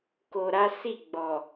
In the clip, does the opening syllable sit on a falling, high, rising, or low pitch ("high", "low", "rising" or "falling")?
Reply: low